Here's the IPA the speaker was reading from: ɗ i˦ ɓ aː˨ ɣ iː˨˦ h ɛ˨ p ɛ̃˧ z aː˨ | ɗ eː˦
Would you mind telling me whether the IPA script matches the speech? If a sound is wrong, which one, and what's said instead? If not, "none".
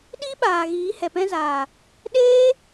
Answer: none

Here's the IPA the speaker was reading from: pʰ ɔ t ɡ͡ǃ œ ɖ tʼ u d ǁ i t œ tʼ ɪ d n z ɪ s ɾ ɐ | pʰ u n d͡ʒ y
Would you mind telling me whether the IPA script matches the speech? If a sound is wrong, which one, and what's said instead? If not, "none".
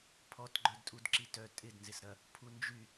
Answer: ɖ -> d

